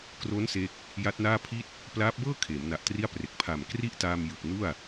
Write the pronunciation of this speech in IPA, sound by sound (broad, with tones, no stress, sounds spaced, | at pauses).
k r o˦˥ n s e˦˥ k̚ | j a˦˥ t̚ n aː˥˩ pʰ i˥˩ t̚ | p l aː˦˥ p̚ b ɤː˥˩ kʰ eː˩˦ m n a˨˩ ʔ t r i˥˩ a̯ p r e˨˩ k̚ pʰ a˨˩ m k r i˥˩ ʔ t aː˧ m j ɯ˨˩ k̚ n u˥˩ a̯